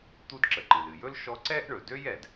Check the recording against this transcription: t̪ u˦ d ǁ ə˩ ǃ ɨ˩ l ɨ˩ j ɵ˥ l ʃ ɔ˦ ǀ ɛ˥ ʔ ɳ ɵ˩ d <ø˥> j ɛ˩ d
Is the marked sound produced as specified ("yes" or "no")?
yes